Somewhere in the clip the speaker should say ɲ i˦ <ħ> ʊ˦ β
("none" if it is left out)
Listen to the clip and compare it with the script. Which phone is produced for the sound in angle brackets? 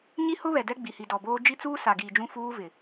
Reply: h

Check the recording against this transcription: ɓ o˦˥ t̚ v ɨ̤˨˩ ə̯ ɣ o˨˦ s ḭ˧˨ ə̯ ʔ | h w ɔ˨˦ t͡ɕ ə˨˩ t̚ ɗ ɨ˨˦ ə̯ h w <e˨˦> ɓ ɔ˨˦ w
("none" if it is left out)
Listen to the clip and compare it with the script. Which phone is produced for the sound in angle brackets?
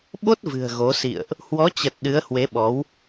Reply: e˨˦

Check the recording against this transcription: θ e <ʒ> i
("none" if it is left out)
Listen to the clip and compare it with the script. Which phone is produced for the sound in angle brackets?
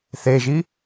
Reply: ʒ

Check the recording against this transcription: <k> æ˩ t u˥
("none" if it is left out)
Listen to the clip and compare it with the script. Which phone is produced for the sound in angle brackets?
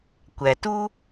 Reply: kʷ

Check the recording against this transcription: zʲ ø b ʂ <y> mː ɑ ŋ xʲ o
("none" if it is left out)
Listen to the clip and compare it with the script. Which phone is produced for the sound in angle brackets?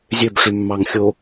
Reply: y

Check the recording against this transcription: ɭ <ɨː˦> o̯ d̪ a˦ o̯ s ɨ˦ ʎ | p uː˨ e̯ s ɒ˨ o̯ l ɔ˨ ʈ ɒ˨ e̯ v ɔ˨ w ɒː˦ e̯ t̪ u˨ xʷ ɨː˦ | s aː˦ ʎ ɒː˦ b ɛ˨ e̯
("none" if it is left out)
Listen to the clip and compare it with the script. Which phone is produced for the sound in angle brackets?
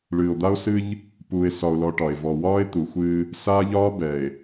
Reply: ɨː˨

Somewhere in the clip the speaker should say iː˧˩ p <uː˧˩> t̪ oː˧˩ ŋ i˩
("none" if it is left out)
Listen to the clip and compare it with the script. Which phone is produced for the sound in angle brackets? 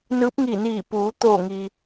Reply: uː˩˧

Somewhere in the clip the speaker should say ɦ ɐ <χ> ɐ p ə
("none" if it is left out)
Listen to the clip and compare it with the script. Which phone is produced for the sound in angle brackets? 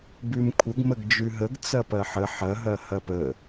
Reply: h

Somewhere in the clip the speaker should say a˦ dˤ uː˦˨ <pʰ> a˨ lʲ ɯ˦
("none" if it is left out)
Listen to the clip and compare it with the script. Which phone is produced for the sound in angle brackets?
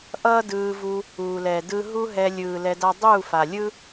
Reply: f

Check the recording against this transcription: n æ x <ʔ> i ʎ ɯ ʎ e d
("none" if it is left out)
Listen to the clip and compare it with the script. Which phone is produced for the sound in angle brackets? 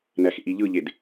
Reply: ʔ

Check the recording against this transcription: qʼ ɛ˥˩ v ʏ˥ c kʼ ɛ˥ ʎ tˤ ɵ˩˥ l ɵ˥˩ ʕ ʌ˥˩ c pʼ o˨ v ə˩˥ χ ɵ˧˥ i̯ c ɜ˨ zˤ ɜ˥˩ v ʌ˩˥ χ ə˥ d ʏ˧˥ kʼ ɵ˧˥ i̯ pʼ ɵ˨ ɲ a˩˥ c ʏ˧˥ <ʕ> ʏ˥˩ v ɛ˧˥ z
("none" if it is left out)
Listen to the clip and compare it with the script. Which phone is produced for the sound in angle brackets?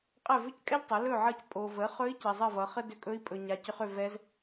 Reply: χ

